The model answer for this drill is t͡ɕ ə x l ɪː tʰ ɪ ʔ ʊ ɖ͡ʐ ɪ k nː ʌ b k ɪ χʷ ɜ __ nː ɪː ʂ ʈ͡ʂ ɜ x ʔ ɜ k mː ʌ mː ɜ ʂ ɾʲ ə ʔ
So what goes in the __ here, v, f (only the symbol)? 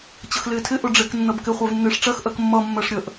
v